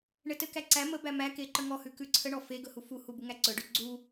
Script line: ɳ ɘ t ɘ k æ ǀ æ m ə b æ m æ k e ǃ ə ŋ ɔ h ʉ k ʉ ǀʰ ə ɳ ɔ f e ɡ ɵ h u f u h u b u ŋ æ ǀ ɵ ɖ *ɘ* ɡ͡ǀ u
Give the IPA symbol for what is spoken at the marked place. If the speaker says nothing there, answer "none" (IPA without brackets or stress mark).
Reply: ʉ